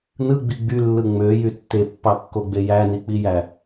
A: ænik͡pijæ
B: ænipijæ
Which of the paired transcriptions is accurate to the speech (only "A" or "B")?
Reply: A